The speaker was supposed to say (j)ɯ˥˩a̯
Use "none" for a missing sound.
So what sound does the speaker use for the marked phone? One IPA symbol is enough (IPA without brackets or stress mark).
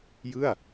j